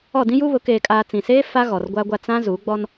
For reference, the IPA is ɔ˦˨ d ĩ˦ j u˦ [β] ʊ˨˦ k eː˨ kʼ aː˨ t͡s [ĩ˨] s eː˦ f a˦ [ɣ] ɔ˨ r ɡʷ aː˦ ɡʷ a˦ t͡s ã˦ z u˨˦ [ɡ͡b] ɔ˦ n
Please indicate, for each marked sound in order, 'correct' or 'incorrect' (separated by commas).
correct, correct, correct, correct